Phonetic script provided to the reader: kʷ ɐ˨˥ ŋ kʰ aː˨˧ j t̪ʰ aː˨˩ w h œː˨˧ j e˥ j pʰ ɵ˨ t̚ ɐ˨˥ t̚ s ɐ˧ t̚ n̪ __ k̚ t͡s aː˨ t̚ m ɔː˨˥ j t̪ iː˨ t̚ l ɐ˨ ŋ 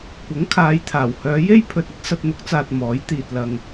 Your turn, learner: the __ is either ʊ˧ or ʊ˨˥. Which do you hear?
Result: ʊ˨˥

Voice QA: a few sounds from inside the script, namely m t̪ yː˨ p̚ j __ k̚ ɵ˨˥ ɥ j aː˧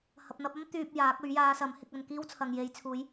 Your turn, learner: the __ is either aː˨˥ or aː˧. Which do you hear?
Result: aː˨˥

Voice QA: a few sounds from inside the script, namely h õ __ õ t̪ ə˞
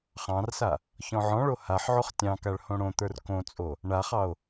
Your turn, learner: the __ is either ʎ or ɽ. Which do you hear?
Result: ɽ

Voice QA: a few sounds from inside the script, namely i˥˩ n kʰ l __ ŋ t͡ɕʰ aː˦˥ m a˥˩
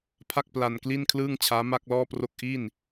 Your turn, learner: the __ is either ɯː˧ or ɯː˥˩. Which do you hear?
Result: ɯː˥˩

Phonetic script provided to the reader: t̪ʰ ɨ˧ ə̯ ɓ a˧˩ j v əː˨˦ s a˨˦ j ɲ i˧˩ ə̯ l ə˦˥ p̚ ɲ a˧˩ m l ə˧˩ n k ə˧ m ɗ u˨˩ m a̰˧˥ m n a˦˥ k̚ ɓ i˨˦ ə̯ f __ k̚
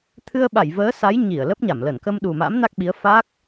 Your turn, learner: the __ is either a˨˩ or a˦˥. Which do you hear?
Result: a˦˥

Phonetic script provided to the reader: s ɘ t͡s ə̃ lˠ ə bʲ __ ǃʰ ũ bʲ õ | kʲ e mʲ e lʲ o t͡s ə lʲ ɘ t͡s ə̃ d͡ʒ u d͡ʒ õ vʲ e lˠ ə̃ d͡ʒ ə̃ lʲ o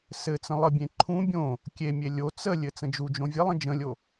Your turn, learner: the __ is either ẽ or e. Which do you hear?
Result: ẽ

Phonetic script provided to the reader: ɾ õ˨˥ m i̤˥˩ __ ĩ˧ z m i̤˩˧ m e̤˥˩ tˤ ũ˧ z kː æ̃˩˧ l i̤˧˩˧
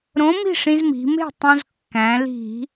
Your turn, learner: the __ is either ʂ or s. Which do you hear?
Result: ʂ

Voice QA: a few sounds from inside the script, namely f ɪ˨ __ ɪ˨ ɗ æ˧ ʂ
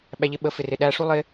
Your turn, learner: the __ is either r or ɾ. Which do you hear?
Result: r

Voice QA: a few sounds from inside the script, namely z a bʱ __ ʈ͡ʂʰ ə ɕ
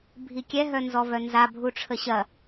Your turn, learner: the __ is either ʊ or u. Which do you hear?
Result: u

